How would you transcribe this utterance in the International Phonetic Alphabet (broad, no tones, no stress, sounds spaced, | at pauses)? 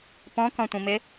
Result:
p ɔ̃ k ɔ̃ tʷ ĩ m ɪ